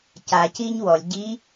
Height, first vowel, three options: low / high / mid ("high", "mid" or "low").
low